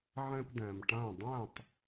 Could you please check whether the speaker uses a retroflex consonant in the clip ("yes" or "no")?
yes